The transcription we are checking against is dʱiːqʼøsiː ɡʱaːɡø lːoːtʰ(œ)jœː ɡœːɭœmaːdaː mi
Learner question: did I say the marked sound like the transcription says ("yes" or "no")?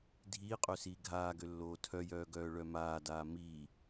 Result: yes